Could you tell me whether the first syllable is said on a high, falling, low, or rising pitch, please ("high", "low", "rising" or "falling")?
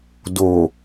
low